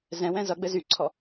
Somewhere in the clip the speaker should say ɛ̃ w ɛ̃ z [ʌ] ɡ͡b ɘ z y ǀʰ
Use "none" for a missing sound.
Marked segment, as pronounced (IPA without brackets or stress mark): ʌ